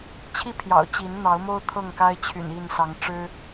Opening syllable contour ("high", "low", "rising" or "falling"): falling